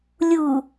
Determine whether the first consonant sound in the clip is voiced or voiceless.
voiced